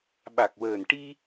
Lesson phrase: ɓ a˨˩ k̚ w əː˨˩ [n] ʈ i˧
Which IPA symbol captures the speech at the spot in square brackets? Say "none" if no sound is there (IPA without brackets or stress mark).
n